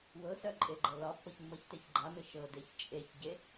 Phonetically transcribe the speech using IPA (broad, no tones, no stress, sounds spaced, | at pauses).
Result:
w ɤ s œ ǃʼ e ɡ͡ǃ ɤ l ɒ pː ɤ ç mː ɤ ç t e ç ɡ͡ǃ a m ɪ ʃ ɤ d e ç t͡ʃʼ e ç ɟ e